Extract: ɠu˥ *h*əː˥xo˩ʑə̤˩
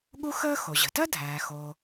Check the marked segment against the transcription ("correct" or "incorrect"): incorrect